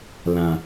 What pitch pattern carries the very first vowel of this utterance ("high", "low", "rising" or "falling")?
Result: low